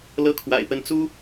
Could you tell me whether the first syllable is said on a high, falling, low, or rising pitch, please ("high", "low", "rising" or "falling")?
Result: falling